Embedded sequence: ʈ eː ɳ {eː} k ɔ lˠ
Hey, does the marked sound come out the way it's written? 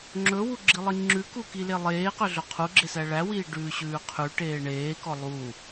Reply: yes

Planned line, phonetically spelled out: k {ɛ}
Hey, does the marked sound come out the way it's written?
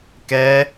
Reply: yes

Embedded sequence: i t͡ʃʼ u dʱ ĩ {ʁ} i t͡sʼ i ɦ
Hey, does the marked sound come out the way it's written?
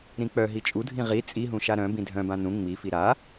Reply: yes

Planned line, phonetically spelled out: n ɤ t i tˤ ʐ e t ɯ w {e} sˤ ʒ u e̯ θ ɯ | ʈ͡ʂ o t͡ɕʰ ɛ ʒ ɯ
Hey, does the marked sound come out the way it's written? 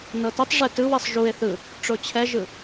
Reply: no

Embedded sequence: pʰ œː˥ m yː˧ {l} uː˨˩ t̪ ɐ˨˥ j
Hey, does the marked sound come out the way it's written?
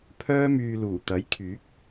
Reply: yes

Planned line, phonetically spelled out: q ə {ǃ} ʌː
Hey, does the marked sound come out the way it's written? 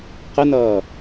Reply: no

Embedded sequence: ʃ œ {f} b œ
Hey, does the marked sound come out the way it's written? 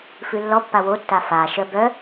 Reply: no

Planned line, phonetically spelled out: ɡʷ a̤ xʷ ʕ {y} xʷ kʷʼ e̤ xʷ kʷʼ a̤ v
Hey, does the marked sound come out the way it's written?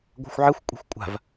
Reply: no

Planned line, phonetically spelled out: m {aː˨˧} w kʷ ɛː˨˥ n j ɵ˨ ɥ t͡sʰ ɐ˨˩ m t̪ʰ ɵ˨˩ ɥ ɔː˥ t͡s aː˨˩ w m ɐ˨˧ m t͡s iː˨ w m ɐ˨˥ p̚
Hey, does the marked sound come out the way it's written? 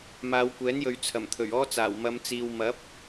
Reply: yes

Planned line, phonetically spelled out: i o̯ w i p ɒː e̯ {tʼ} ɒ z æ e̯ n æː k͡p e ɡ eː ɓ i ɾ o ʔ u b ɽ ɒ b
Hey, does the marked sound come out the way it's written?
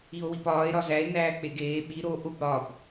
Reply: no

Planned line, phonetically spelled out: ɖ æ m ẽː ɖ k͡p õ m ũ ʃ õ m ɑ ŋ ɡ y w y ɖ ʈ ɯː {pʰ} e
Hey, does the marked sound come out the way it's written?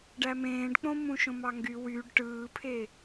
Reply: yes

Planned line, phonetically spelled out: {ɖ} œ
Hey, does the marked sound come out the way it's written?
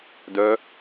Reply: no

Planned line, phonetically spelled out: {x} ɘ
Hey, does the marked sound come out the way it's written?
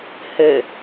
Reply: no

